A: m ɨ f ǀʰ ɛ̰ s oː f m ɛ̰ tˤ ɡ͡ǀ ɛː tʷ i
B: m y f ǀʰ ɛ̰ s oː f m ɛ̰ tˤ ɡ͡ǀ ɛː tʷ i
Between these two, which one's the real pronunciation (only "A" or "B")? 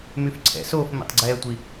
B